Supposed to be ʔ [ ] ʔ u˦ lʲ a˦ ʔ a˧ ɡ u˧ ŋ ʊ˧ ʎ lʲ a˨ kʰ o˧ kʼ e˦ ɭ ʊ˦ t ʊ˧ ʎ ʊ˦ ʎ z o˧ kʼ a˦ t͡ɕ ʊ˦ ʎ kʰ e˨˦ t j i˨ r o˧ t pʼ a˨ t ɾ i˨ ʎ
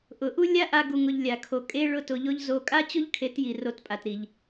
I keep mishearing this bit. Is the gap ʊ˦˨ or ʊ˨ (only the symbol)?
ʊ˨